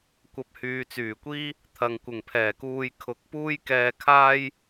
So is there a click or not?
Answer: no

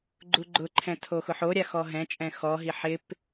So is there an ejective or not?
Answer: yes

